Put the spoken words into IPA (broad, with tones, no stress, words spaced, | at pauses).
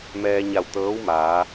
mɛː˧ɲa˧˩w t̪ɤː˧˥w maː˩˧